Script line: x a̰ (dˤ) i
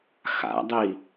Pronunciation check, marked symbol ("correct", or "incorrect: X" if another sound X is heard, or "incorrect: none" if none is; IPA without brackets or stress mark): correct